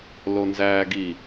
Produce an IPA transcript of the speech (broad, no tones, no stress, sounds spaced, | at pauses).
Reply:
l o n z æː ɡ i